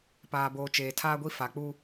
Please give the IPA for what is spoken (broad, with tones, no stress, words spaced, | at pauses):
paː˨boː˨ t͡ʃeː˨tʰaː˦ɡʷi˦ fa˨k͡puː˦